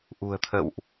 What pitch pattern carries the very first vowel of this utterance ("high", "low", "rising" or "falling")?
low